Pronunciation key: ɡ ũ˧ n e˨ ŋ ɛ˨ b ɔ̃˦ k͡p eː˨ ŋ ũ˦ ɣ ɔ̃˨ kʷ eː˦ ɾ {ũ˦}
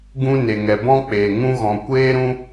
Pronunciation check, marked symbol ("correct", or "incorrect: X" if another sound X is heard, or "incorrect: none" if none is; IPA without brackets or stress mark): correct